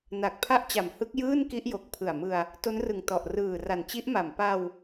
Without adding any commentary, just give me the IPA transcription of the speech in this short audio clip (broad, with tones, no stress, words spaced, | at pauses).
na˨˩k̚pʰa˥˩ʔt͡ɕa˨˩mhɯ˦˥k̚ jɯː˥˩n ki˦˥ʔjo˨˩k̚pʰɯ˨˩a̯mɯ˧a̯ | to˦˥nrɯ˨˩ŋ tɔ˨˩ʔrɯː˨˩ ra˨˩nt͡ɕi˦˥ʔma˨˩m pa˧w